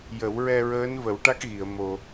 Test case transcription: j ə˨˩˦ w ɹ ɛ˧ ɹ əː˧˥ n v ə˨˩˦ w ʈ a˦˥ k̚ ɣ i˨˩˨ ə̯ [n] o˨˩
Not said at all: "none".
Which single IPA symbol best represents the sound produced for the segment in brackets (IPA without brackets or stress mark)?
m